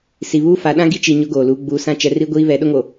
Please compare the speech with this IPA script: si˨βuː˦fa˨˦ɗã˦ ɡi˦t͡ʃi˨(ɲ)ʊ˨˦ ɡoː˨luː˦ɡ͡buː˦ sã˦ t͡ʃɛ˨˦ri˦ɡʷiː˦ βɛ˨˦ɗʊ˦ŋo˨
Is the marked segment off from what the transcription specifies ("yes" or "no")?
no